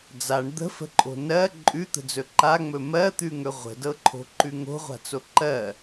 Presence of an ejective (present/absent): present